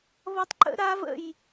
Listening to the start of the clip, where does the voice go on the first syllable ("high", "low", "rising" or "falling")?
falling